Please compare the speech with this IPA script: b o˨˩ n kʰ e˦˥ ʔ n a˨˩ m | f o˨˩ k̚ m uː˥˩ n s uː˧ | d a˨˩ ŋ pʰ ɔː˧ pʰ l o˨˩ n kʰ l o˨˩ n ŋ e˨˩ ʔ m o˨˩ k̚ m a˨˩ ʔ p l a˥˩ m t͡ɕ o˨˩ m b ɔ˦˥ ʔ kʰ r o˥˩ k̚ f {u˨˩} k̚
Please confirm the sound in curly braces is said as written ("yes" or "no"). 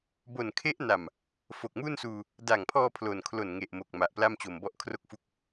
no